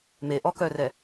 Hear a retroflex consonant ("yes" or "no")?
no